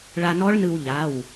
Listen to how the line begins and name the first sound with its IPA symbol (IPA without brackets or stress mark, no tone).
ɭ